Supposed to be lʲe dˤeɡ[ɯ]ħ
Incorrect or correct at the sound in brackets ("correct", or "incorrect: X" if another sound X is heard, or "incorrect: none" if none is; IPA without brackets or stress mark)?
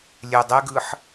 correct